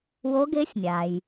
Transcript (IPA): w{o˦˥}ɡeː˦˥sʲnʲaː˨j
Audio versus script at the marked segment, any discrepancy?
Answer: no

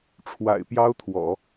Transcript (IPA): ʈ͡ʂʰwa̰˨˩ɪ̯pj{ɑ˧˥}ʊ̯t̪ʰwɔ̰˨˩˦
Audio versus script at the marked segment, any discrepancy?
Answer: yes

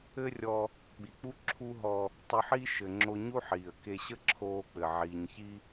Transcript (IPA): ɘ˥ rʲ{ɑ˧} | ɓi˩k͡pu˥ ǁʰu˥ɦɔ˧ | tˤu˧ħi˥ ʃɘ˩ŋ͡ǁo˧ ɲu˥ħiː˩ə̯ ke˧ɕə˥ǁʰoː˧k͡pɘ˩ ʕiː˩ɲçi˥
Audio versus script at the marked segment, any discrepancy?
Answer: yes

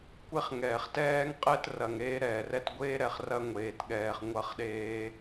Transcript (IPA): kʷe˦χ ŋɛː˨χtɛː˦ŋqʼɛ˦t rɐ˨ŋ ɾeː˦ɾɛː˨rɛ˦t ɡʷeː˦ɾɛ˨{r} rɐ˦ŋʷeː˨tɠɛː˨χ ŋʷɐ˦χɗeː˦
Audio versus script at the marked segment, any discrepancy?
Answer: yes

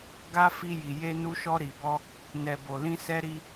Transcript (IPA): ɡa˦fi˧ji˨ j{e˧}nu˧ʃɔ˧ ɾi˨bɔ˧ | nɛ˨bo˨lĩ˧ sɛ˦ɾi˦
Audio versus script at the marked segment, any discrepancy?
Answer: no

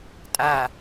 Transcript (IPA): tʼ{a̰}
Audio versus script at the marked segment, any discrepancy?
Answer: yes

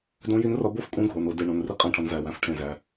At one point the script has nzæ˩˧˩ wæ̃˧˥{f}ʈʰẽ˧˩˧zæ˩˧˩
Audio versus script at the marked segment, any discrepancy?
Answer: no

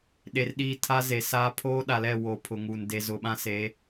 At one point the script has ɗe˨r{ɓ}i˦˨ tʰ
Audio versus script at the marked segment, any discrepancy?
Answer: yes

